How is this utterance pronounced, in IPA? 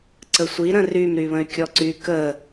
ǀəsʷiɾə̃ rymɾyβə̃y̯ kʲɔǀy kə

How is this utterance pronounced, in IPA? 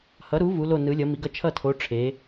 hʌ˩˧ɾu˩˧ vu˩˧lo˧˩nɯ˩˧ lʲʌ˩˧mi˩˧ɡʌ˧˩ t͡ʃʰʌ˧˩tʰo˩˧ ʈ͡ʂʰe˩˧

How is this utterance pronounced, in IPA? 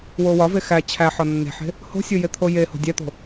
wowɒve xæ t͡ɕʰæ ħɒnːe̤ħe̤ | ho̤sʲo jet̪ʰojeho̤ dʲæt̪o̤

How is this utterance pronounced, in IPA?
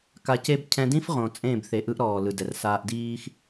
ka˧ce˦b cʰɛ̃˧dĩ˦fʁõ˨ t͡sʼẽ˦˨b θe˨ʔɯ˧ʔ ɾɔː˨lɯ˨ dɛ˨r saː˧ʔdiː˦x

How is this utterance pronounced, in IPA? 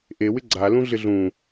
ʔewɪ ɡ͡ǀalũ ɮɪɮũ

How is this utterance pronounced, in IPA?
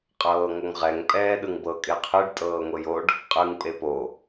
qʼɤːŋoŋʁɛŋ pʼɛːɗɯŋbɤ kʼeqʰɯɖ tʼɤːŋʷejoɖ | qʼɯŋ pʼepo

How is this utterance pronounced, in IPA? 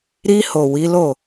ɾi˧ho˨ wi˨˦lo˦˨

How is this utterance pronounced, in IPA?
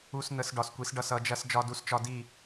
u˧s n̪ə˧s ɖɒ˩˧skʷi˩˧sɖʌ˧˩s ʌ˩˧d͡ʒɐ˧s d͡ʒɒ˧du˧˩st͡ʃɒ˧di˧˩

